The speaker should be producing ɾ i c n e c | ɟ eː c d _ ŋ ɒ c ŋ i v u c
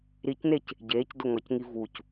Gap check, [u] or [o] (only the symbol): o